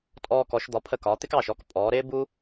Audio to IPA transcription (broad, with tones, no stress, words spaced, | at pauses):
tʼɔː˧kɔ˩˧ʃd̪ɒ˩˧pʰə˧˩ kɒː˩˧t̪ɪ˥kɑː˧˩ʃ ɔ˥k pʼɔː˩˧ɾɪː˥ bu˥